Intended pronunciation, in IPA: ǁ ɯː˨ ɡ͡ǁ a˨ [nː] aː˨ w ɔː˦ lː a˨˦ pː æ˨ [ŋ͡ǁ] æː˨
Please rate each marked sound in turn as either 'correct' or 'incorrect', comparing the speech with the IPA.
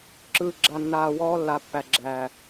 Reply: correct, incorrect

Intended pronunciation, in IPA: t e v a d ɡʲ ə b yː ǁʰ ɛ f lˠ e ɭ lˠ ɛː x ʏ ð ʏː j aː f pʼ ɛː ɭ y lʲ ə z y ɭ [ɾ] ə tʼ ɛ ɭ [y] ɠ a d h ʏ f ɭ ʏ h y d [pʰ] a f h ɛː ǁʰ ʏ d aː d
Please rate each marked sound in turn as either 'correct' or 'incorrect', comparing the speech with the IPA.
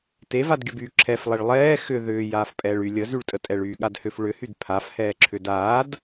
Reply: incorrect, incorrect, correct

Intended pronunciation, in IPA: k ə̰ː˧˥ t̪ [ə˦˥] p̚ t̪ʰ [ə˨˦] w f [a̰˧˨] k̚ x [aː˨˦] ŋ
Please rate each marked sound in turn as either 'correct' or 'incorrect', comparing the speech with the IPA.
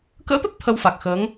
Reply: correct, incorrect, incorrect, incorrect

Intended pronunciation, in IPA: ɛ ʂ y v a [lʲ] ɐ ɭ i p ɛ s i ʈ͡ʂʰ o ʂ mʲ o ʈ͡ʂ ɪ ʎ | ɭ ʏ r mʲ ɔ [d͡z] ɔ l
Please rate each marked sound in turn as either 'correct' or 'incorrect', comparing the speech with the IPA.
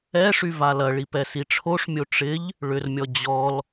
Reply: incorrect, incorrect

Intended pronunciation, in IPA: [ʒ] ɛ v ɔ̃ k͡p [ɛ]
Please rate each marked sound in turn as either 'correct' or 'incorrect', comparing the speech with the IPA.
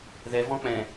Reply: incorrect, incorrect

